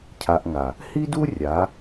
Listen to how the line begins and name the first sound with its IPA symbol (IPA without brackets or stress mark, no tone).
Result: cʰ